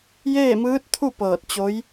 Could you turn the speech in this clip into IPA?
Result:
j eː˥˨ m ɯː˧˥ t̚ t̪ʰ u˥˨ p ɤː˧˩ t̚ t͡ɕ o˧˥ j

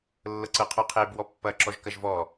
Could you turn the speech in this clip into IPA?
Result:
lː ɤ ǀ ɤ qʰ ɔ qʰ e b w ɔ pː ɐ ǁ ɔ ʒ k ɐ ʒ v ɔ

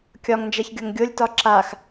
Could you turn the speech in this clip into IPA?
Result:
kʲ ɒ ŋ n d͡ʒ a ç ɡʲ o ŋ ɡʲ o lʲ t ɒ ǁ a x

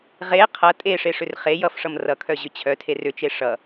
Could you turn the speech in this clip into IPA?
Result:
ʁ e qʰ ʌ tʼ e ʂ e ʂ ʏ r χ e j ʌ f ʂ ʌ m r ʌ kʰ œ ʑ ʏ t͡ɕʰ œ tʰ e r ʏ t͡ʃ e ʂ ʌ

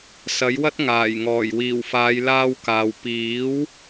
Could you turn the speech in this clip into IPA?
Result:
s ɐ˨˥ j w ɐ˥ t̚ ŋ aː˨˩ j ŋ ɔː˨˩ j w iː˨˩ w f aː˨˧ j l aː˧ w k aː˨ w p iː˨˥ w

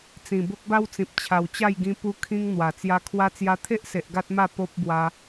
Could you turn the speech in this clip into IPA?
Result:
t͡s ĩ˨˩ b o˦ k̚ b a˦ w t͡s ĩ˨ p̚ t͡ɕʰ a˨˩ w t͡ɕ a˥˧ j ɡ ĩ˧ p u˧ kʰ ĩ˧ ŋ n̪ w a˨˩ t͡s j a˧ kʰ w a˧ t͡s j a˧ t̪ʰ e˦ ʔ s e˨ ʔ ɡ a˦ t̚ m a˥˧ p o˦ p̚ b w a˧

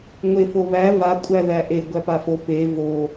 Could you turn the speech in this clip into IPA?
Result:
ŋʷ e f o β æ v a kʷʼ æ ð æ ʔ e ɡʷ æ p a f o p e v o

